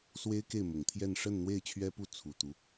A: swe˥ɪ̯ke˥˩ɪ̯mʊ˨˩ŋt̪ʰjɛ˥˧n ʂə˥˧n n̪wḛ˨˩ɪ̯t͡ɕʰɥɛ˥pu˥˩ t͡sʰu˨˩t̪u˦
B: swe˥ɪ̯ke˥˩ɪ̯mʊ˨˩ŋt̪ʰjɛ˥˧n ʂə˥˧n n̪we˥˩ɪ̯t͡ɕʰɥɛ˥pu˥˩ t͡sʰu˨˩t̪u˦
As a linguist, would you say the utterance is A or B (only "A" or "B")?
B